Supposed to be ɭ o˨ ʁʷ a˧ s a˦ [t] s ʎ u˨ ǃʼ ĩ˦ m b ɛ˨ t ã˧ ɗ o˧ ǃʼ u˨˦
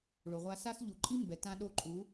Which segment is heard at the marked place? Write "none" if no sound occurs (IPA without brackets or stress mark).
none